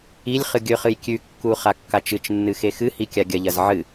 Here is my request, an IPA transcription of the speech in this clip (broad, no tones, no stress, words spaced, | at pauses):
ilʲ χɨɡʲɵχɨj kʲʉkːu χakːat͡ʃɨt͡ʃnːɨ xexɨhi kʲaɡʲɐʎɐz ʕɨ